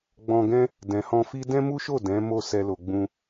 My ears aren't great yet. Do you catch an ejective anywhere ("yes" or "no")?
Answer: no